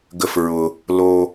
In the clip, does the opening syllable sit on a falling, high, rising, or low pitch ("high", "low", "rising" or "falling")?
low